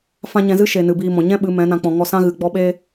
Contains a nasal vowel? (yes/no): yes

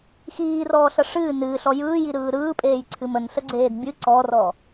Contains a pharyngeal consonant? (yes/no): no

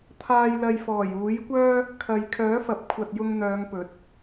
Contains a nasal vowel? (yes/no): no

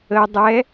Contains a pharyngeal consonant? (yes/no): no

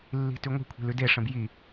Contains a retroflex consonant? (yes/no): yes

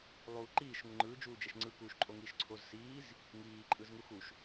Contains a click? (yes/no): yes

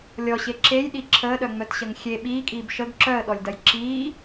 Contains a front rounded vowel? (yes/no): yes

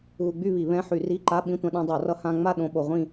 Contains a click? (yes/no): yes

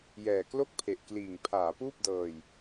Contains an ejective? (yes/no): no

